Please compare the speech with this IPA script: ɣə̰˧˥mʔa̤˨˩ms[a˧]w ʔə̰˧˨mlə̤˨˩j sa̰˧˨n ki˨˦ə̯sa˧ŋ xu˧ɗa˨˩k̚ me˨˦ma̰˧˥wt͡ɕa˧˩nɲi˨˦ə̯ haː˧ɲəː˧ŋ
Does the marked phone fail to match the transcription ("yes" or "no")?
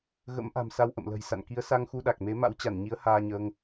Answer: no